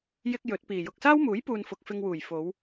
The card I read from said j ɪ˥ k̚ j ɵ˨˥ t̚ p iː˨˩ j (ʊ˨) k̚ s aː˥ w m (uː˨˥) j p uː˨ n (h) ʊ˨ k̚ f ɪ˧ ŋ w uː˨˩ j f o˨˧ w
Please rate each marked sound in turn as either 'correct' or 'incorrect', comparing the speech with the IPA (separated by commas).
correct, correct, incorrect